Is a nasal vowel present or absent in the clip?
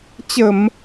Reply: absent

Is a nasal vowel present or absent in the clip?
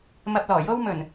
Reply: absent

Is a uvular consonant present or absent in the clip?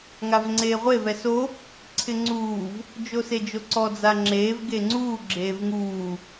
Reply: present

